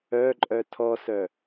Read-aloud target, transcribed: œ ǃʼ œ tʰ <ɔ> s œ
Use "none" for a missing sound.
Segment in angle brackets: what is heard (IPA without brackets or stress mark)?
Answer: ɔ